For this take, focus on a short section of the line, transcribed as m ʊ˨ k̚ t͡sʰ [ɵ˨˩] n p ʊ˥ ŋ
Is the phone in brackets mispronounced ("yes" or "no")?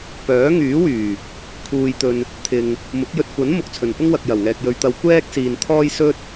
no